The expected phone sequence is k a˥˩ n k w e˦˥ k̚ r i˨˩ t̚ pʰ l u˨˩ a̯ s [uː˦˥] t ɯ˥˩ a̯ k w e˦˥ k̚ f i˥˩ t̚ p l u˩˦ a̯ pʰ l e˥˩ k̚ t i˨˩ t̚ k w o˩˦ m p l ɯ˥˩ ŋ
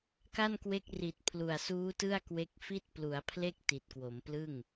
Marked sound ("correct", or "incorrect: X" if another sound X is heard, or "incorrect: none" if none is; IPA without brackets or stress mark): correct